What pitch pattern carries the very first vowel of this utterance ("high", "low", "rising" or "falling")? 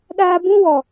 high